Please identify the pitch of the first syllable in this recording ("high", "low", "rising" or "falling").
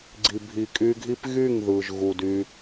low